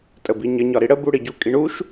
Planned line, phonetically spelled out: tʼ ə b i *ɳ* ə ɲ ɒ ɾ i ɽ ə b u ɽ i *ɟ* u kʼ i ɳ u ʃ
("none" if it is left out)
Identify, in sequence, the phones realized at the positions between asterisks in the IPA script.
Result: ɲ, ɟ

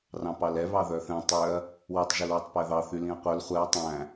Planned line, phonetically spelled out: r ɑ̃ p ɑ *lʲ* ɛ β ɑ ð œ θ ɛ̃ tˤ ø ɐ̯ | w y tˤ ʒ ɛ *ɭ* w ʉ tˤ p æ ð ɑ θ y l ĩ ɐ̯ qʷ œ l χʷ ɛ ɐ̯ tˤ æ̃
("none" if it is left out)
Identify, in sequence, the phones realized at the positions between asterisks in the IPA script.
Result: l, l

